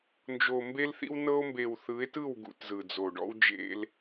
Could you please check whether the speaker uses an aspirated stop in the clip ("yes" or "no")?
no